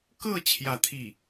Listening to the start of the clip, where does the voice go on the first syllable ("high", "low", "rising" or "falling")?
falling